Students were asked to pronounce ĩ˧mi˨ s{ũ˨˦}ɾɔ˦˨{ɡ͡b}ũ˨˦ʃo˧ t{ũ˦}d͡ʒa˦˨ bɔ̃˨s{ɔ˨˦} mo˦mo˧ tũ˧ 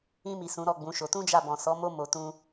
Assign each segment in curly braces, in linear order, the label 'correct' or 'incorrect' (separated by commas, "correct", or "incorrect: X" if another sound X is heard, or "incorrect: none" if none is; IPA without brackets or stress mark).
correct, correct, correct, correct